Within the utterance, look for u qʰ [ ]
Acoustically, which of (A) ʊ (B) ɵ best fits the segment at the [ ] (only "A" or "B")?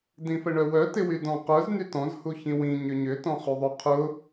A